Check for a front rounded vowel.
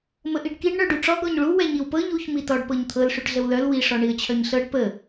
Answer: present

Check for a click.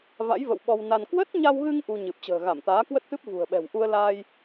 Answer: absent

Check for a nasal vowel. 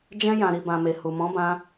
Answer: present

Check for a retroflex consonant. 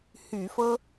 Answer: absent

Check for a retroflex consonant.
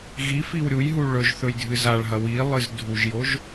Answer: present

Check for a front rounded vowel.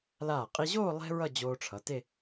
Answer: absent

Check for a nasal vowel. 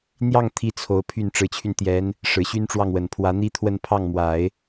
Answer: absent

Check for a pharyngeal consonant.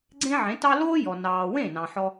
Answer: present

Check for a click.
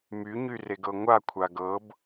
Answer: absent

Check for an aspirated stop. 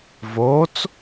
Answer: absent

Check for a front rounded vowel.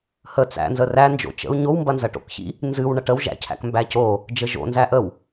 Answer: absent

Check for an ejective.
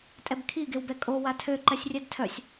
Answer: present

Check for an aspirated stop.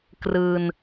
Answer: absent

